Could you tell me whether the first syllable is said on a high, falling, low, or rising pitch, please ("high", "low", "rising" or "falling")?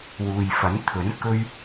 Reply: low